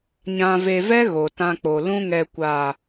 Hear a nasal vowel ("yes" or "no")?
yes